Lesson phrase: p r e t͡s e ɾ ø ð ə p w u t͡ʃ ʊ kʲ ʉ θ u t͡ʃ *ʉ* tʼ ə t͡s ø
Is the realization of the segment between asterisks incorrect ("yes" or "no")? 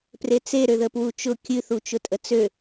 yes